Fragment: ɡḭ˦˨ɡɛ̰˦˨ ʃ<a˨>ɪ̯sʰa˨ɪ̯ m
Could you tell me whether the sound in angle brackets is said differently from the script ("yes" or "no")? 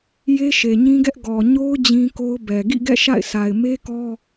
yes